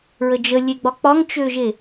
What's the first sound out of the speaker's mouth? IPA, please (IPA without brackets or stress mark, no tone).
ɹ